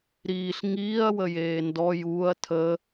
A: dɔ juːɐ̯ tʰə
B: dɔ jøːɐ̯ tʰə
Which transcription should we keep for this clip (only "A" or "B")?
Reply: A